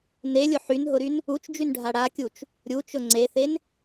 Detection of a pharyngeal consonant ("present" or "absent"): present